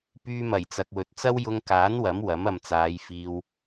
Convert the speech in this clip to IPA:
p yː˧ m ɐ˨˩ j t͡s ɐ˨ k̚ w ɵ˨ t̚ t͡s ɐ˥ w j ʊ˧ ŋ k aː˨˥ n w ɐ˨˥ m w ɐ˨˥ m ɐ˨ m t͡s aː˨˧ j f iː˧ w

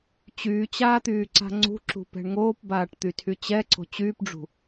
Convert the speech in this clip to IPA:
t͡ɕ yː t͡ɕ aː t̪ yː ǀ a̤ ŋ͡ǀ ṳ ǁ ṳ p ɛ̤ ɳ ŋ oː p b aː ʈ t̪ y tʰ y t͡ɕ ɛ ǀ o̤ t͡ɕ yː p ɖ͡ʐ ṳ

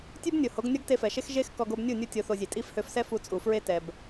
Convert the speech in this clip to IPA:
tʲ ʉ˦ b nʲ o˨ h o˨˦ ɡ nʲ ɔ˦ ɡ t e˧ f ɛ˨ ʃ e˦ x ʒ e˦ x k ɔ˧ ɡ o˧ b nʲ u˦˨ nʲ u˧ tʲ o˧ θ o˧ zʲ e˨ tʼ i˧ f h ø˧ f s ɛ˦ f u˧ t͡sʼ u˨ f ɹ e˦ t ɛ˧ b

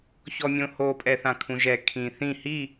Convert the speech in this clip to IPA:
ç ɔ mʲ õ h o pʼ ɛ θ ã kʰ ũ ʒ ɛ kʰ ĩ θ ĩ h i

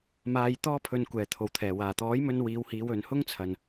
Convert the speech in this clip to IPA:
m aː˧ j t̪ ɔː˥ pʰ ɵ˧ n kʷ ɛː˨ t̪ʰ o˨ w t̪ʰ ɛː˨˩ w aː˨˩ t̪ ɔː˨˥ j m ɵ˧ n w iː˨˧ w h iː˨˧ w ɵ˨ n h ʊ˥ ŋ t͡sʰ ɐ˨ n

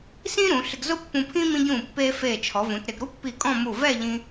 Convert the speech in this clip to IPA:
s ĩ˥ ɾ ũ˩˧ ɬ ɪ˧ ɡ z ʊ˥ pː ũ˧ pʰ ĩ˥ m ĩ˧ ɟ ũː˧˩ pː eː˧ f eː˧˩ t͡ʃʰ ɔ˩˧ v ũ˩˧ t ɾ ɪ˩˧ ɡ ɾ u˥ pː i˧˩ kʼ ɔ̃˥˧ m u˧˩ v ɛ˥˧ ʎ ĩ˧

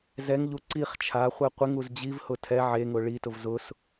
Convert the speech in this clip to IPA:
z ɛ ŋ ʎ u ǀ i χ t͡ʃʰ a χʷ ɛ qʷ ɪ ŋ u z d͡ʑ i v h ʊ tʰ ɛ ʕ e ŋ ʊ ɭ i t ʊ v z ʊ s

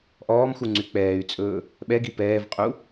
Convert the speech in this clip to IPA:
ʔ ɔː m x u ŋ͡ǀ y k͡p ɛː y̯ t͡sʼ ɵː | ɓ ɛ ɡ i p ɛː v qʼ u

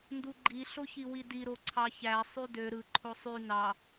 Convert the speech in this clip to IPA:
n d u ɡ͡ǃ i ɬ o ç i w i d i ɾ o ǀʰ ɑ ç æ sˤ y d ø ɾ ɯ ǃʰ o sˤ y n ɑ

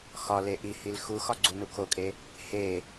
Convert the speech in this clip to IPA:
x ɒ l e ʔ i h i l x u x ɒ ɡ͡ǀ u n u kʰ o kʼ e | h e

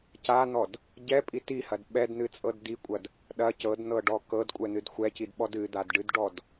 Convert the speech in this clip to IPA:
c a n̪ ɔ d | ɟ ɛ pʼ i t i h ɐ d ɓ ɛ d n̪ ɨ t͡sʼ ɤ d d̪ i kʷʼ ɐ d | ɗ ɐ c ɤ d n̪ ɤ ɖ ɔ k ɤ d kʷʼ ɛ n̪ ɨ d xʷ ɛ c i d ɓ ɔ d ɨ d̪ a d ɖ ɨ d ɖ ɔ d

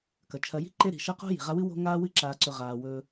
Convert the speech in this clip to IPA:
k ɐ˩ t͡ʃʰ ɐ˨ j i̤˥ ǃ e˦ ɾ i̤˩ ʃ ɐ˦ q o̤˦ j i̤˩ ʁ a˦ w ɨ˥ w o̤˦ ŋ aː˦ w ɨ˦ ǁ aː˨ ǀ ɵ˨ ʁ aː˩ w ɵː˨

